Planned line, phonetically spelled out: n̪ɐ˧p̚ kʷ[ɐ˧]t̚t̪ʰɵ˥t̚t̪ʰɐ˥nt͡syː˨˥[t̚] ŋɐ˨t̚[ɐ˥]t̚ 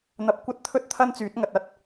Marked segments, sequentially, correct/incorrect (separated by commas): incorrect, correct, correct